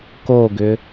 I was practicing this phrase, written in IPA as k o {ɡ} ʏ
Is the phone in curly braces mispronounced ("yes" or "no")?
no